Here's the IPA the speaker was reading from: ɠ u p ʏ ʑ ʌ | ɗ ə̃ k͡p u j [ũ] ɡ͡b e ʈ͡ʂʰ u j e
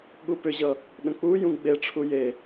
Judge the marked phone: correct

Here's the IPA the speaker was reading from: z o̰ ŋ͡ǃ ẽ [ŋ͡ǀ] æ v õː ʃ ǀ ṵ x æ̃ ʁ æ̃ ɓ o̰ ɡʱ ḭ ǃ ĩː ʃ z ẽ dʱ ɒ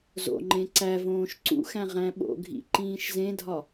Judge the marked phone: incorrect: ǀ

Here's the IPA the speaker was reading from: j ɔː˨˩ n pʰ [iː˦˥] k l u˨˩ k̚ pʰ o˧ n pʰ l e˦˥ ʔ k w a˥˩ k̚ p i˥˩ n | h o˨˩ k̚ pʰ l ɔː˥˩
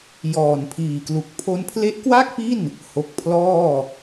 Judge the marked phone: incorrect: iː˨˩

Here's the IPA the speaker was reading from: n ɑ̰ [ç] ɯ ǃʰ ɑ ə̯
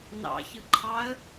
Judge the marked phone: correct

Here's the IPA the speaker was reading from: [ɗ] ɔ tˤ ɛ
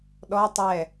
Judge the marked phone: correct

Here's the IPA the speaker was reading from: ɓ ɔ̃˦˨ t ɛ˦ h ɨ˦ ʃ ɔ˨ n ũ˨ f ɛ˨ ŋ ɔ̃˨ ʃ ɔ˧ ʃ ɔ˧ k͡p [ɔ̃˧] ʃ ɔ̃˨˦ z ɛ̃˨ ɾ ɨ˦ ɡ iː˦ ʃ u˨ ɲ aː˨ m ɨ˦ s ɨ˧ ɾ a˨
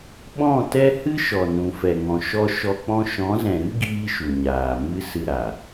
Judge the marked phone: incorrect: ɔ̃˦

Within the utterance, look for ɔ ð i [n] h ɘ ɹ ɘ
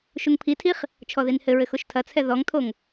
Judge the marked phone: correct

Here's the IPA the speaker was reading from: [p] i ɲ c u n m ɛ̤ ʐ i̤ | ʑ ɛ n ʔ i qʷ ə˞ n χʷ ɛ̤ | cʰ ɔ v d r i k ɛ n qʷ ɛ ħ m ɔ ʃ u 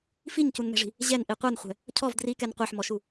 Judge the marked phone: incorrect: f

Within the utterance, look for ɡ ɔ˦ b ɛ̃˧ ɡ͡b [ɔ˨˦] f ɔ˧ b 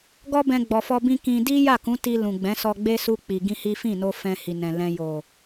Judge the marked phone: incorrect: ɔ˨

